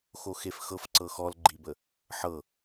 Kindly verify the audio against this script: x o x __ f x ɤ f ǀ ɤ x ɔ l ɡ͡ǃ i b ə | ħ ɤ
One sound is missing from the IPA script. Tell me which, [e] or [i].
e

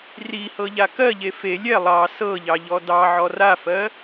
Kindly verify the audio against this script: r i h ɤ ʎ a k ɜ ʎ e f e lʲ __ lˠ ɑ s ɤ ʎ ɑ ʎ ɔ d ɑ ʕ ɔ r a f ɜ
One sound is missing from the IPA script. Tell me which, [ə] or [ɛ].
ɛ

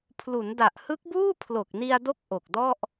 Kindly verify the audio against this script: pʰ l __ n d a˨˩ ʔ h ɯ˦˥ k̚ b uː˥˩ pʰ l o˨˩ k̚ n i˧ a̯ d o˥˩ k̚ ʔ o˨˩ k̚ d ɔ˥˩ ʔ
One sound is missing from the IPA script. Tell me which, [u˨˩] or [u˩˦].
u˩˦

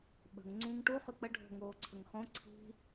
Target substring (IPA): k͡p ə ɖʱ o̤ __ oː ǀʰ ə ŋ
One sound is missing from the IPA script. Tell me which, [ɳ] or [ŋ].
ŋ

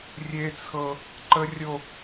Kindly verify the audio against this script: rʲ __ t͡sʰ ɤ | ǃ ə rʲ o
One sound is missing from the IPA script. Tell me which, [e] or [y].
e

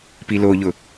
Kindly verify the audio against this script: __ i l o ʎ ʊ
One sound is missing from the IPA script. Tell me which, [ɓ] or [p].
p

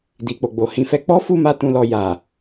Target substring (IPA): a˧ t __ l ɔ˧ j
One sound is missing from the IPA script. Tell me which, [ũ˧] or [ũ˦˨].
ũ˧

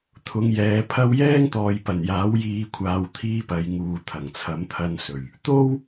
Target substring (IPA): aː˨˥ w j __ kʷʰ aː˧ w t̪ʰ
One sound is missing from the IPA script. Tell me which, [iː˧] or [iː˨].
iː˧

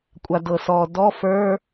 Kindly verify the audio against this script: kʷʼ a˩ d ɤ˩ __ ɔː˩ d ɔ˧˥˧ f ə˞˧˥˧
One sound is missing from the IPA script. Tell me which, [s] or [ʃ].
s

